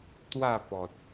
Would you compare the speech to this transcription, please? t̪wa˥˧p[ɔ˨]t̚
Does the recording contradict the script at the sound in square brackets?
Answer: no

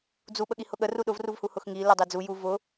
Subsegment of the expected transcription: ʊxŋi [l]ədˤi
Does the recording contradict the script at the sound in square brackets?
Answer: no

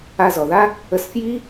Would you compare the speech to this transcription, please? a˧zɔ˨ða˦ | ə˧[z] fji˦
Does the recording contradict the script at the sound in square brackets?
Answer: yes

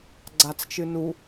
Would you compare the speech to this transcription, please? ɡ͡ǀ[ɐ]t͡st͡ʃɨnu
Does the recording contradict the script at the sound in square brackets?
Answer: yes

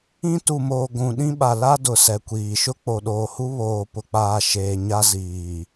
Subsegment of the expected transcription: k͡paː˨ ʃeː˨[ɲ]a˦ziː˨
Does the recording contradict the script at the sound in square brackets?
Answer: no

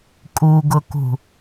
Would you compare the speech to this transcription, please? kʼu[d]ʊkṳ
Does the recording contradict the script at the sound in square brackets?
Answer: yes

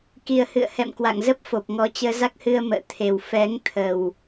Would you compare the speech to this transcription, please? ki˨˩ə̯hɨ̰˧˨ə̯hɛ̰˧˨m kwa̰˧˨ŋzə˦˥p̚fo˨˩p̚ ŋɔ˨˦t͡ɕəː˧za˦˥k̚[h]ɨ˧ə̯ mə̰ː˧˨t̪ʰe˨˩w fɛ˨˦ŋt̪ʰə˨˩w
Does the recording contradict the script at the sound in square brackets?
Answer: no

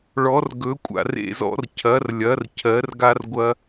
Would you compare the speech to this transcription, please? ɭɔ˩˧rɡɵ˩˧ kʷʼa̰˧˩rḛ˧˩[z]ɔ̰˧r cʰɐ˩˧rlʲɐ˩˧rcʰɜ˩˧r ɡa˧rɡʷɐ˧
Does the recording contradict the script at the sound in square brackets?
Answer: no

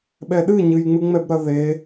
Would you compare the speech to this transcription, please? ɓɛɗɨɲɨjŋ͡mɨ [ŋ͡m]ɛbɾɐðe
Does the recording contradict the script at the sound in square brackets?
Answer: no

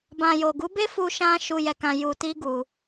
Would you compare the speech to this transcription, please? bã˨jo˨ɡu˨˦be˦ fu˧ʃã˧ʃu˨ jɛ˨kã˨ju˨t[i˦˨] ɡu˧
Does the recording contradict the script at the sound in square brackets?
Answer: yes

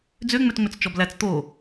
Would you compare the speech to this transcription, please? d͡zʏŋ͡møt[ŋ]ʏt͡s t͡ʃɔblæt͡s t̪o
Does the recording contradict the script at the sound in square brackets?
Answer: yes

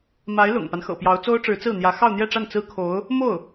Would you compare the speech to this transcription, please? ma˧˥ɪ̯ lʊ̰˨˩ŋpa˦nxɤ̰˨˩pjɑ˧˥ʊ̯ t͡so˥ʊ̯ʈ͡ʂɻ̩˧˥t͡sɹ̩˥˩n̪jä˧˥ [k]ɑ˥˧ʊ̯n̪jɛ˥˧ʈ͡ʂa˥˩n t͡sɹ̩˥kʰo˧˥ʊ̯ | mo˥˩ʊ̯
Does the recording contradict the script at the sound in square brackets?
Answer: yes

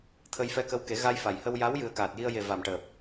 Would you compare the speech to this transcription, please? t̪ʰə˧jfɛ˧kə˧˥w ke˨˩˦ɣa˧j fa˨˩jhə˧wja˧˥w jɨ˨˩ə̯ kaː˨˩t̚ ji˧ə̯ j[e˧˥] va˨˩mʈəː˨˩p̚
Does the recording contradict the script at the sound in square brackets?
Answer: yes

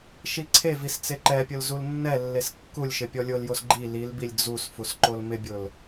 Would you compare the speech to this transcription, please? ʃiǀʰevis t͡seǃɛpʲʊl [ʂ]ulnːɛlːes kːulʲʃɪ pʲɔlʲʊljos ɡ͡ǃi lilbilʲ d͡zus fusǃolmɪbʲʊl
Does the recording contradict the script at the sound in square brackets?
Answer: yes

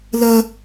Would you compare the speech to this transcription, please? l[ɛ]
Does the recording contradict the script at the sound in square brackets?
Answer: yes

